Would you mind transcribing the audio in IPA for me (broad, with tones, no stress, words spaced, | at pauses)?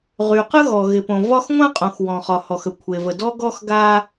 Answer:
ʁy˩qə˥ɣɔ˩ ɣɪ˩põ˩ vɒ˥x ŋʷã˥qʼõ˩xwɔ̃˩χɒ˩ hɔ˩xə˩kʷʰe˩və˩ dɔ˥ɡɔ˥x ɡa˥